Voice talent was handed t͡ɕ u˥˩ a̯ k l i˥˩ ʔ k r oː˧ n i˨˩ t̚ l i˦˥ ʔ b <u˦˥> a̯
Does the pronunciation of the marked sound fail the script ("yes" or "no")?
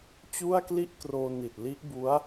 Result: no